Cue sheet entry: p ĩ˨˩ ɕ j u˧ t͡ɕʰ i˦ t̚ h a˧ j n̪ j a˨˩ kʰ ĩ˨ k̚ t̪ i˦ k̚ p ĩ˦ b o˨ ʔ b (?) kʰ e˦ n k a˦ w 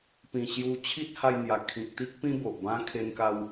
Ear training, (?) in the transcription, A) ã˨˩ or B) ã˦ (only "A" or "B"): B